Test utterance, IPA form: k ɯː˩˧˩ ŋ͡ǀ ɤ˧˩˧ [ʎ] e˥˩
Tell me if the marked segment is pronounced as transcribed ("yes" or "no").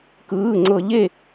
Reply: yes